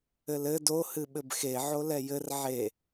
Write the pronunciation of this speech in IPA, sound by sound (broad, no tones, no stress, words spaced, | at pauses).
ɘlɘ do hɨɓɘbxe ʕolɛjɘr ʕe